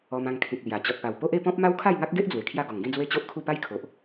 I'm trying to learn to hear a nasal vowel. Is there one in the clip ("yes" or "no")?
yes